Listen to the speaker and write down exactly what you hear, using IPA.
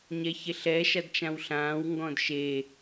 ɲ ɛ ç e ɬ ɛ ʃ a d t͡ʃ ã w ɬ ãː w ŋ ɡ ɔ̃ d ʃ e

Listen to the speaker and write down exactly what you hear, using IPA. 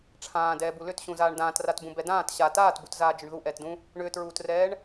ʈ͡ʂʰ ãː d ɛː b u l ʏ t ɕ ũ z aː ɳ d ãː t r a t b ũ b ɛ d ãː t ɕ a t aː t b u t z aː d͡ʒ ʏ ɳ ð u ʔ ɛː t d ũ | ɳ ʏː t ɹ uː t r ɛː ɳ

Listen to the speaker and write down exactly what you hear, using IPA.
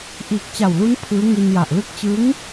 ʔ iː˨˩ k̚ t͡ɕ a˨˩ w l u˦˥ n pʰ ɯː˦˥ ŋ i˧ n j a˨˩ ʔ l ɯ˥˩ k̚ t͡ɕ ɯ˦˥ ŋ

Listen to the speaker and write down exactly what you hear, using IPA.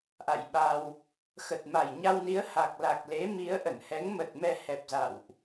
ʔ a̰˧˨ j ɓ a˧ w | x ə˨˩ t̚ m a˨˩ j ɲ a˧ w n i˨˦ ə̯ h a˨˩ k̚ l a˨˩ k̚ l e˨˦ m i˨˦ ə̯ ʔ ə˧˩ n h ɛ˨˦ ŋ m ə˨˩ t̚ m ɛ˧ h ɛ˨˩ p̚ z a̰˧˨ w ʔ

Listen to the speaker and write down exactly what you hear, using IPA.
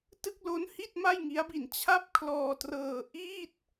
t ɯ˥˩ k̚ l o˦˥ n h i˥˩ t̚ m a˥˩ j ŋ i˦˥ a̯ b i˧ n t͡ɕʰ a˥˩ p̚ kʰ l ɔː˧ t r ɤː˧ ʔ i˥˩ t̚

